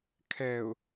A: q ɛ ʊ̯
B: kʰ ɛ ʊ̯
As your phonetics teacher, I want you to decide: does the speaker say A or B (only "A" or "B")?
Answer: B